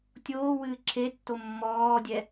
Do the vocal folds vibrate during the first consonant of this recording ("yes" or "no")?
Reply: no